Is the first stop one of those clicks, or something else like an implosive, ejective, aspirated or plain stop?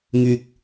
plain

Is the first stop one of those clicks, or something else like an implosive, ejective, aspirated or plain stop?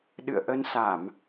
implosive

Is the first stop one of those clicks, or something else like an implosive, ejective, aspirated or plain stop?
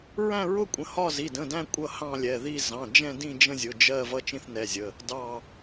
ejective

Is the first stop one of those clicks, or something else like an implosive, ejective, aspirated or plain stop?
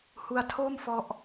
aspirated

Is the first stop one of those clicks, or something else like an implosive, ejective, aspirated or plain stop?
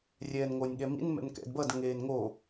implosive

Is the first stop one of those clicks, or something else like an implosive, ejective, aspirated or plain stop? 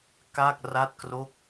plain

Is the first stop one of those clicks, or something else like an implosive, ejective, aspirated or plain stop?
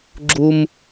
click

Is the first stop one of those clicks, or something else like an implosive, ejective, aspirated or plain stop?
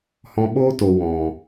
implosive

